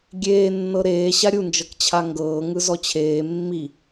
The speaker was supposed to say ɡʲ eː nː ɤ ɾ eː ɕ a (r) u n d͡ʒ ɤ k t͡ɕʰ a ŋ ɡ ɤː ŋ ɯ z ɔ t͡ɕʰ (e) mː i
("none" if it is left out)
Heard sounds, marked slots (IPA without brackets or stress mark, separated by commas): ɾʲ, eː